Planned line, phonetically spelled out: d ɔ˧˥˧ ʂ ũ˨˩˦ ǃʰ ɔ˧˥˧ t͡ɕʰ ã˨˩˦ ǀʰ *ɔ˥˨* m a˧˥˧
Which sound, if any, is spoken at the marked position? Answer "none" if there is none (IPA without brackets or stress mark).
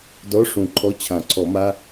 ɔ˨˩˦